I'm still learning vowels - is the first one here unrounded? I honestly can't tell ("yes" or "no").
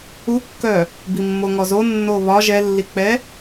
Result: no